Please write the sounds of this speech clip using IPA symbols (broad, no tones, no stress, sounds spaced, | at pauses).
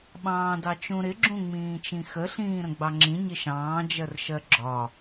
ɓ ɑ̃ː d ɑ t͡ʃ ũ ɾ ɪ ɡ͡ǁ ũ ŋ͡m ĩː t͡ʃ ĩ x ə ɬ ĩː ɾ ə̃ ɡ͡b ɑ ŋ͡ǁ ĩ ɲ ɪ ʃ ɑ̃ː d͡ʒ ɜ r ʃ ɜ ɡ͡ǁ ɒ